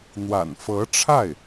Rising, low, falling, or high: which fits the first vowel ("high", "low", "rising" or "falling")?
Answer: low